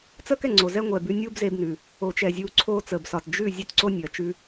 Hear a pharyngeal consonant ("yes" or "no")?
no